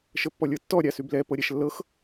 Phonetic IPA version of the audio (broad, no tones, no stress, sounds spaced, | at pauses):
ʃ ə pː ɔ lʲ ɤ tː ɔ ɾʲ a s y b l ɛ p ɤ ɾʲ ɛ ʃ lː ɤ x